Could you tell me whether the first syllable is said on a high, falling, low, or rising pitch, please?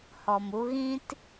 low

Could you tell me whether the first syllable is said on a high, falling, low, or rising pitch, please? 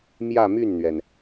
falling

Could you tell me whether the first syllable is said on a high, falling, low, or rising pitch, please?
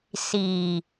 low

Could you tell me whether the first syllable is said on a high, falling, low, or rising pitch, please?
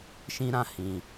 high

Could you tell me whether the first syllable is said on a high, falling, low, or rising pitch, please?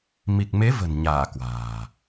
low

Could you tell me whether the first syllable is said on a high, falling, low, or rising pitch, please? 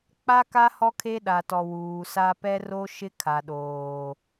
high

